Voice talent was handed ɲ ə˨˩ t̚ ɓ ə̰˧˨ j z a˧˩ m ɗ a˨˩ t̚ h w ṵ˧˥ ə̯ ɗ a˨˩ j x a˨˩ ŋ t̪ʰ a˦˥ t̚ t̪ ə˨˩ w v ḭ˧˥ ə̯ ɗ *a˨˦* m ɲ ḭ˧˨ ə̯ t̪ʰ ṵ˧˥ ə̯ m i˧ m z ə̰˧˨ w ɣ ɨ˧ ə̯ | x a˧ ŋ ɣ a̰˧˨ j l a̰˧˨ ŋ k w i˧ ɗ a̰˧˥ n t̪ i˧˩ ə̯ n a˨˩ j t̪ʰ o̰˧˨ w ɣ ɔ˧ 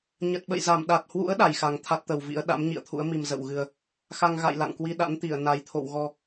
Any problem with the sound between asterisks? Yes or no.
yes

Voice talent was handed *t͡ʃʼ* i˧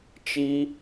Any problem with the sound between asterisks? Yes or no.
yes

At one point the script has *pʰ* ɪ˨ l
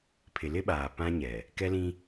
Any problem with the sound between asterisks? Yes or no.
no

